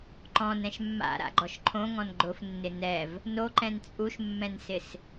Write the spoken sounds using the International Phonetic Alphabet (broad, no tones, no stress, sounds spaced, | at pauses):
ǃ ɔ̃ n ɛ̃ ʃ mː a̰ ɾ a̰ ɡ͡ǃ ɔ ʃ ǃʰ õ ŋ ɔ̃ n ɡ͡ǃ ʊ f nː ɪ n ɛ v | n o ǃ ɛ̃ n t͡sʼ u ʃ mː ɛ̃ n s ɪ s